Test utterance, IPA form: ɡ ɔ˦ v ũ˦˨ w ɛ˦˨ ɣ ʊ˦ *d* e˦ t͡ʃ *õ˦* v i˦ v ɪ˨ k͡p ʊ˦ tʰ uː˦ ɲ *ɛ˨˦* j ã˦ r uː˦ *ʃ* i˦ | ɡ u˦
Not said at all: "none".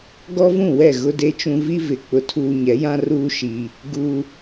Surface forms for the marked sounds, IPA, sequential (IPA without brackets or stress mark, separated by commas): d, ũ˦, ɛ˨˦, ʃ